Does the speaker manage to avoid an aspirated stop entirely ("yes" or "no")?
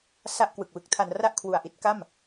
no